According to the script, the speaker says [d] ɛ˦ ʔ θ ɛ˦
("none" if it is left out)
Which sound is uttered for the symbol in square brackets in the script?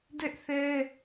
d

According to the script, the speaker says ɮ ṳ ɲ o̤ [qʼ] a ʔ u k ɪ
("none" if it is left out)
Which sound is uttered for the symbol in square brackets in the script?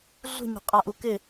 qʼ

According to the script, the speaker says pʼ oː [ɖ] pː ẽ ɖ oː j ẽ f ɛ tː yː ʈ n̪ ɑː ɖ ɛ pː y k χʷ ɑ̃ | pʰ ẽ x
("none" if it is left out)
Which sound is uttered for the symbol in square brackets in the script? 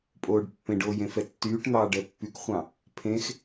ɖ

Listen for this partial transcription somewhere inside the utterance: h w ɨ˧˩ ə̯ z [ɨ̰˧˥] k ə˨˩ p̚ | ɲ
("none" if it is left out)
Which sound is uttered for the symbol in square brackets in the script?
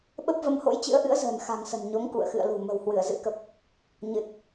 ɨ̰˧˥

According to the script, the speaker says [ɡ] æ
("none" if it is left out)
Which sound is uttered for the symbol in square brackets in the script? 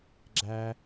ɡ͡ǁ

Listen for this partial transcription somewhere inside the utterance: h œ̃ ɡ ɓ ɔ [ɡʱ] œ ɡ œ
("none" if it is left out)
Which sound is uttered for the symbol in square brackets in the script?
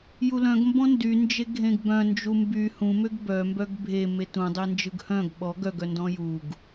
ɡ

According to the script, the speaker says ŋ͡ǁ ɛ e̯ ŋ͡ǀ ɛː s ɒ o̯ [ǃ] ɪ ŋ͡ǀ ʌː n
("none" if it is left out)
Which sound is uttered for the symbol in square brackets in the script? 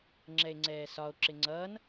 ǁ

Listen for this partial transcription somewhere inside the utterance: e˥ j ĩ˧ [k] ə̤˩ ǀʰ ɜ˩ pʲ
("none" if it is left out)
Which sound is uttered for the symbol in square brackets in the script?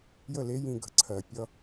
ɡ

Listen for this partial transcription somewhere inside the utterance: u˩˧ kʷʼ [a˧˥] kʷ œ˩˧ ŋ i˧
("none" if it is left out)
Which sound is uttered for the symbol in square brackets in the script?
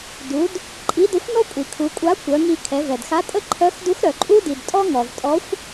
a˧˥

